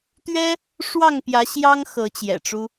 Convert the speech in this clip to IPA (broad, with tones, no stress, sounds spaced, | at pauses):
t̪ ɥ ɛ˦ | ʂ w ɑ˥˨ ŋ p j ä˨˦ ɕ j ɑ˦ ŋ x ɤ˨˦ t͡ɕ j ɛ̰˨˩ ʈ͡ʂ u˦